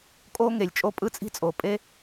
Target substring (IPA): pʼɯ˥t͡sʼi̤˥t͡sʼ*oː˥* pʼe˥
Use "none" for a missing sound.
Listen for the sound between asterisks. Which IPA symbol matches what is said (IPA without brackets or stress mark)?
oː˩